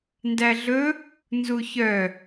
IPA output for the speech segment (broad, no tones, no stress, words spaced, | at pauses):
ndæɮɵ | nzuçœ